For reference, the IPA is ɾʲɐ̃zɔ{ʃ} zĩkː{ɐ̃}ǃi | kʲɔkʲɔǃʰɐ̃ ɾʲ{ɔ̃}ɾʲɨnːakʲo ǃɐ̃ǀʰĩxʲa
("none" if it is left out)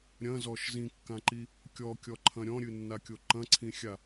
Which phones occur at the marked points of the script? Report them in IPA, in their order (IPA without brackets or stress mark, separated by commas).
ʃ, ã, ɔ̃